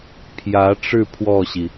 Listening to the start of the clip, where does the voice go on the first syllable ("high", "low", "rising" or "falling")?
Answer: rising